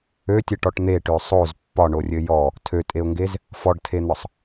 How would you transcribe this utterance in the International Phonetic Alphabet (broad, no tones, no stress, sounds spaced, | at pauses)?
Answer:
ø tʲ ɘ ʈ ɔ ʈ n̪ e ʈ ø sˤ o z pː ɒ ɳ o rʲ ɘ j ɔ | tʰ ø tʼ e ʊ̯ ŋ ɡ e z | f ɔ ɖ tʰ e n̪ ɒ sˤ